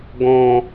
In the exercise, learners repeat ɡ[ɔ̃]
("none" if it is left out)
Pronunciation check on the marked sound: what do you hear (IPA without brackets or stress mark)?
ɔ̃